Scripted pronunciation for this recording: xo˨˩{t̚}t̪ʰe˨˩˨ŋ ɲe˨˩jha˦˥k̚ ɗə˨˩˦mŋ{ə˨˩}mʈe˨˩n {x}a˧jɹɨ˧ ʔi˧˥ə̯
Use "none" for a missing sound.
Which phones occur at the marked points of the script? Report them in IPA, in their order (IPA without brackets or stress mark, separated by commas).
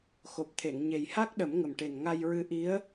p̚, ə˨˩, ŋ